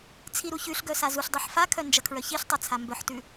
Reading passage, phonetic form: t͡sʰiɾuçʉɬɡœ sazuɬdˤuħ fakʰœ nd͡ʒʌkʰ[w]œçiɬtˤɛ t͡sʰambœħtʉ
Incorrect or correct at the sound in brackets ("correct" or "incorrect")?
incorrect